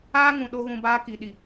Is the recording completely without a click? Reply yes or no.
yes